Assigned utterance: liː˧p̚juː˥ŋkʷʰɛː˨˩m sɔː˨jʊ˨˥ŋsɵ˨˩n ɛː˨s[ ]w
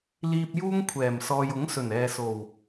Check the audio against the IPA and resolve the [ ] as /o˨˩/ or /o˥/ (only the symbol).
o˨˩